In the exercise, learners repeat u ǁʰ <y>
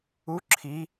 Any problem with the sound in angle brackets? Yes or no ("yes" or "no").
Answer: yes